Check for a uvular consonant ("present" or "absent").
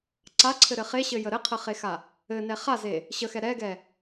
present